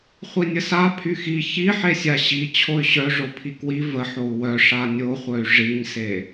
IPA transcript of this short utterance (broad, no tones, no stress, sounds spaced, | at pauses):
χʷ i nʲ ə s a pʰ y x i ç i ħ e sʲ a ɕ i t͡ɕʰ o y̯ ɕ œ ʐ o pʰ i k w i v ə ħ o u̯ w œ ʂ a nʲ o χʷ œ y̯ ʐ i ɲ s e